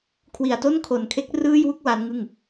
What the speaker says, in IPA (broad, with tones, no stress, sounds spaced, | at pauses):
kʰ w i˨˩ a̯ t o˥˩ n kʰ o˨˩ n kʰ e˦˥ k̚ r ɯː˥˩ j w u˥˩ k̚ w a˦˥ n ŋ ɯ˥˩ ŋ